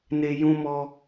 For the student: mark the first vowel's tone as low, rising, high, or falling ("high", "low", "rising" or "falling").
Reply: high